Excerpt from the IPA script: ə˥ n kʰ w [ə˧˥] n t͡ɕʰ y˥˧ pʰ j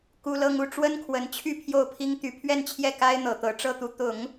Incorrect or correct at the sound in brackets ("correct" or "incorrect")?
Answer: correct